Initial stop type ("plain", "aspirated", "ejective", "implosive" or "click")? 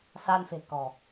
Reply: plain